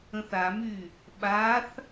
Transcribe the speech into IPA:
ə̃θamy | ɓaθ

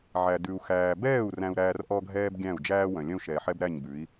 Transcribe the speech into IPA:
ʕæ˨ dʉ˨u̯ xæː˨bɛː˦˨u̯ ræ̃˧u̯ɾæː˧r ʔɔ˦ɡʱɛː˦b ɡʲæ̃˦˨u̯d͡ʒæː˦wœ̃˨ lʲœ̃˦u̯ʃɛː˨ħɛ˦b ɾæ˦˨ɲbʉ˨˦i̯

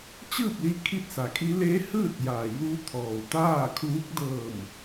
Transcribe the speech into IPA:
t͡ɕɯː˥˨p̚li˧ kʰi˥˨t̚sa˩˧kʰi˧˥ leː˧˥hɯː˥˨t̚jaː˩juː˧ t̪ʰɔː˩wt̪aː˥˨kʰuː˧˥k̚ dɤː˧˩m

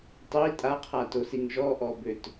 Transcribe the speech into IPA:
tˤi tʼaqʰatosiŋ ʒɔʔɔbøt

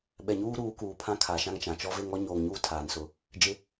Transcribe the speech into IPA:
ɓɛ˨ɲuː˦ ɾuː˨˦kuː˨pʰã˦ kʰa˨ʃã˦ŋt͡ʃã˨ t͡ʃɔ˦ve˦ŋ ɔ˦ɲoː˨ŋɲuː˦ tʰaː˨nsʊ˦˨ | d͡ʒɪ˦

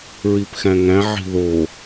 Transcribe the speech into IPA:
ɹipxæ̃ŋæ̃ ʕi̤ðo

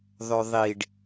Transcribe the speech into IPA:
ðˤøðˤiɖ

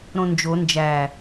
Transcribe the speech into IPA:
ɾõnd͡ʒo nd͡ʒæ

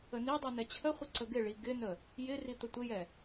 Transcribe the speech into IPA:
ənidˤi nɛt͡ɕʰəχʷɪ ǀəɡɪɭi ɡɪnə | jɪri t̪ətʷɪjɛ

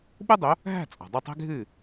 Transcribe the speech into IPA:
ɓu˥dˤo˩˥ | ɦæ̤˥˩t͡sʼɔ̤˩ dˤu˥˩tˤɛ̤˥ɡʱɨː˥˩

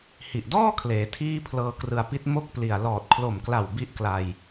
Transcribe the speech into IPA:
hi˨˩ʔdɔː˥˩kʰleː˩˦ tʰiː˥˩pʰlɤː˦˥krɯ˧a̯pi˥˩t̚ mo˦˥k̚pli˨˩a̯ lɔː˨˩t̚kʰlo˨˩mkla˨˩w bi˥˩ʔkla˧j

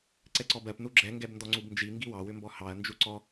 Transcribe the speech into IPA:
ǀɛǀɔbɜp nuɡ͡ǁɛ ŋɡɛbndɔŋ͡ǀubnd͡ʒi ŋɡiwɑ wʏmbɔhɑɐ̯ nd͡ʒuǀɔ

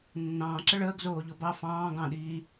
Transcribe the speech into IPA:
nːɑ̃ːǁə ɭəːɡzoːʎo bɑ fɑ̃ː ɡɑ̃ɗiː

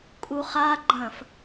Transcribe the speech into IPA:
kʼuχa ɡ͡ǃɐ̃f

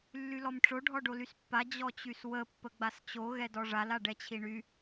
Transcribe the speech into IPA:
lːylɔmʈ͡ʂo ɖʱɔɖolyspːa d͡ʑɔt͡ɕyswə pːəɡ͡bast͡ɕo ɣɛdɔʐal aɖɛt͡ɕʰiɳy

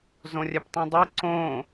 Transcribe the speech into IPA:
zõrʲɛptˤĩdˤi ǀõ

